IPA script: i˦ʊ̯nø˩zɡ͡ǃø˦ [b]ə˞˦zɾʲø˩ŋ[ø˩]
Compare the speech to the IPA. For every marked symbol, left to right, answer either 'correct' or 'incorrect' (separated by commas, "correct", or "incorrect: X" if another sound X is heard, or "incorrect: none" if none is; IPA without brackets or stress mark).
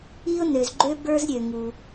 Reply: correct, incorrect: u˩